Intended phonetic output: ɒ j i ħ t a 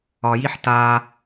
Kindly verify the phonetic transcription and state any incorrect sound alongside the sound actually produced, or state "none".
none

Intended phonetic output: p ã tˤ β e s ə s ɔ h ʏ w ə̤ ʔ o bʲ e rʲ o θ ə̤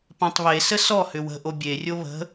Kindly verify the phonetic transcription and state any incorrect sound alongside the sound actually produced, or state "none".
θ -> β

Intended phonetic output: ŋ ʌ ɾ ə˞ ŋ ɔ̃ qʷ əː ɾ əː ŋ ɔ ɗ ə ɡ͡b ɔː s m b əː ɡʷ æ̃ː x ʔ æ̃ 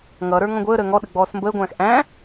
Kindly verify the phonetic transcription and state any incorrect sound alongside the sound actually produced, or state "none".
qʷ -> ɡʷ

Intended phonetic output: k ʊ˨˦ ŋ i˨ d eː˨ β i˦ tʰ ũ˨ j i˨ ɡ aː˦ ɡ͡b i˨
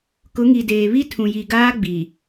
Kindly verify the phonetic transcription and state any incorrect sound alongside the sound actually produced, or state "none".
none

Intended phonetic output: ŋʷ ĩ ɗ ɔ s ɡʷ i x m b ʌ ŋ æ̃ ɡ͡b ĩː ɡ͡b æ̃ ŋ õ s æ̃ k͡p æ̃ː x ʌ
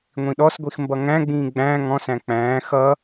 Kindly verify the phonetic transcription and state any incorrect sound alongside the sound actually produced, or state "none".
õ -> ɔ̃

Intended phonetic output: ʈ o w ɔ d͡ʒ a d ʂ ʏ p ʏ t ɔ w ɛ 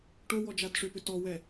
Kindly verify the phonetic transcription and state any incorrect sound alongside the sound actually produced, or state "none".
none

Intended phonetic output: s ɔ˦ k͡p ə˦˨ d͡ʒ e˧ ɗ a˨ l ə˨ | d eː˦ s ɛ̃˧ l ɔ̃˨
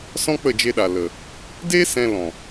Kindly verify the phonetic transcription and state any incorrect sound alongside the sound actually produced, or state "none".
ɔ˦ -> ɔ̃˦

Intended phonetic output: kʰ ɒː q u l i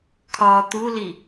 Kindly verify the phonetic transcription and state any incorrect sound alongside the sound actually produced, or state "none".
q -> t̪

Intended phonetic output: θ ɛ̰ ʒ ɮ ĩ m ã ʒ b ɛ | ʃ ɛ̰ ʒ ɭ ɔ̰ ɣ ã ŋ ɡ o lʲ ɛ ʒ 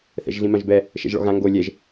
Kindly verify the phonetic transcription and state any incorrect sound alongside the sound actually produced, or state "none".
none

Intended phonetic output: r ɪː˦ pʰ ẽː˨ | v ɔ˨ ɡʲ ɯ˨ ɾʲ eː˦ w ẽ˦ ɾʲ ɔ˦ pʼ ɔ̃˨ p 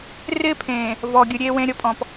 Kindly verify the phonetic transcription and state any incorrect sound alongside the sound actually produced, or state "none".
none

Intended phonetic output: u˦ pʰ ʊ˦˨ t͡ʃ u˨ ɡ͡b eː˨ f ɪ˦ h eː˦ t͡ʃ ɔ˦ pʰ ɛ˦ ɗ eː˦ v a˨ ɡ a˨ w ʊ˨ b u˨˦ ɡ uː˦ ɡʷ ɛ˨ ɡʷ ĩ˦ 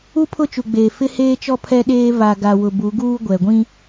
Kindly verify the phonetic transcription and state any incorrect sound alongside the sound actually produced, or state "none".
none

